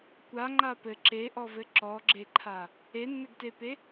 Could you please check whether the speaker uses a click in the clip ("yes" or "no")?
yes